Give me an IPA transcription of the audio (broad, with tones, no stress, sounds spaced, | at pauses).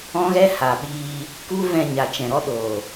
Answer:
ɔ̃˦ ɣ ɛ˦ h a˨ ɓ iː˧ | k u˦ v ɛ̃˧ ɲ a˨ t͡ʃ ɛ̃˨ ɾ ɔ˦ ɗ oː˨